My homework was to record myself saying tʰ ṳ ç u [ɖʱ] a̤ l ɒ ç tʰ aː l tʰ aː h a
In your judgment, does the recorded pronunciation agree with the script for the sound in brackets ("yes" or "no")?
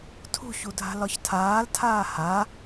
no